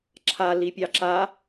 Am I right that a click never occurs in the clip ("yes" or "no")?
no